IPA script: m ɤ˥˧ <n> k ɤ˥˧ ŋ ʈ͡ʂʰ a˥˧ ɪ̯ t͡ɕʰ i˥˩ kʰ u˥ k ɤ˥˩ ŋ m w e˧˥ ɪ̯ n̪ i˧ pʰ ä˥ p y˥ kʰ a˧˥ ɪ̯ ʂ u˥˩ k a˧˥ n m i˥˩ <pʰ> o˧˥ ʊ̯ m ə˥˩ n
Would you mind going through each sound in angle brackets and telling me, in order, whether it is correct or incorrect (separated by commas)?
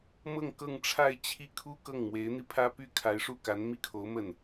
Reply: incorrect, incorrect